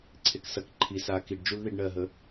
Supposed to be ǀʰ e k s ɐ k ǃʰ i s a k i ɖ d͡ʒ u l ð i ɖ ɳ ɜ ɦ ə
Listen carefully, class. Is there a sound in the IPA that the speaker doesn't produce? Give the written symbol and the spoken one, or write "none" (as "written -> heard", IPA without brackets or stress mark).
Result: none